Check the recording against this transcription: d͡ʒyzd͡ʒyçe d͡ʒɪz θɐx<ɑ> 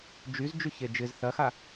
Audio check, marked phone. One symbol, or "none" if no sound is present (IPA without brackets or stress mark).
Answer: a